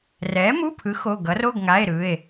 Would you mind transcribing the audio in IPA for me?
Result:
r ɛ˨˥ m u˧˥˧ pʰ ɯ˨˥ x o˧˥˧ ɡ ʌ˨˥ r o˧˥˧ ɡ ŋ a˧˥˧ e̯ ɾ ɯ˧˥˧ e̯

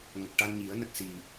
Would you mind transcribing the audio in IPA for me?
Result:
ŋ ə˨˩ k̚ ʈ a˧ n ɲ i˨˩˦ ə̯ n ə˦˥ k̚ s i˨˩

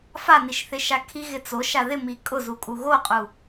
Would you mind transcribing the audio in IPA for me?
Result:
f a n i ʃ θ ɪ ʃ a kʰ i ɣ ɪ t͡s o ʃ a ð ɪ m i kʼ ʊ z u kʼ u ɣ o qʼ u

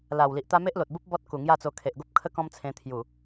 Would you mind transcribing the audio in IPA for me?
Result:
l a˨˩ w l i˨ ʔ t̪ a˦ m e˦ ʔ l o˨ t̚ b u˦ p̚ b ɔ˦ t̚ k u˨˩ ŋ j a˥˧ t͡s o˧ kʰ e˨ ʔ ɡ o˦ p̚ kʰ ə˦ k ɔ̃˦ m t͡sʰ ẽ˧ t̪ʰ j u˨˩

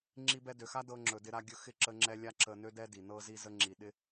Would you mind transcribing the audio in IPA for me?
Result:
ŋ͡ǁ i˧ b ɛ˧ d ø˨ x a˦ d ɤ˧ ŋ͡ǁ ɵ˨ d ɪ˧ ɾ a˧ ɡʲ ɵ˧ x ɪ˦˨ ǁ ə˦ ŋ͡ǁ ɛ˦ lʲ a˦ ǁ ə˧ n ø˦ d ɛ˦ d i˨ n ɤ˧ z i˧ z ə˧ ŋ͡ǁ i˨ ɗ ɪ˧

